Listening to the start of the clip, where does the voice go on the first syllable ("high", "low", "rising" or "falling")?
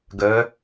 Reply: rising